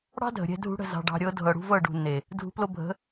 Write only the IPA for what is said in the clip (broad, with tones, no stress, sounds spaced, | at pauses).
ɽ ɑ̤˦ dʱ ə̤˨ ɾʲ ɛ̤˧ dʱ ṳ˧ ɽ ə̤˦˨ z ɑ̤˨ ɖ ɑ̤˨ ɾʲ ɤ˨˦ dʱ ɤ˨ ɽ ṳ˧ v ɤ˦˨ ɖ ṳ˨ nː e˨ | dʱ ṳ˨˦ p l o˧ bʱ ə̤˨˦